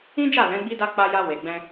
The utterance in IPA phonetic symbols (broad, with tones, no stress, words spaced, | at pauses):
ĩ˦d͡ʒa˦˨ lɛ̃˨˦ɡ͡bi˦ da˧ k͡pa˧ja˧ we˨ɡ͡bɛ̃˧